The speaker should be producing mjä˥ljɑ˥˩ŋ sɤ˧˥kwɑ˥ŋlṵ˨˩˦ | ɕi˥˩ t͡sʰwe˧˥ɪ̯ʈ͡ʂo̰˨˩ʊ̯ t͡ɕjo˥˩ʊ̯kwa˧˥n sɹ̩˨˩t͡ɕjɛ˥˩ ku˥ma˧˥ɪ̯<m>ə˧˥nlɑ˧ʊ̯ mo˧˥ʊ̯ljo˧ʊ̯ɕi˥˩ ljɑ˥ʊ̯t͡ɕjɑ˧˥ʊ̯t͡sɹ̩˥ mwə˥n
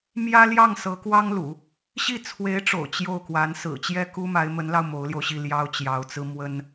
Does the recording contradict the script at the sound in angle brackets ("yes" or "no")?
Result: no